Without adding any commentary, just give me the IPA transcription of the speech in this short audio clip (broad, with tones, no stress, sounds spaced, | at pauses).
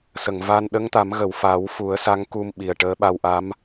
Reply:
s ə˨˩˨ ŋ v a˧ n ɗ ə˧˥ ŋ t̪ a˨˩˦ m ɣ ə˨˩˨ w f a˨˩˦ w f u˨˩˦ ə̯ s a˧˥ ŋ k u˧ m ɓ i˨˩ ə̯ ʈ əː˧˥ ɓ a˧ w ʔ a˧˥ m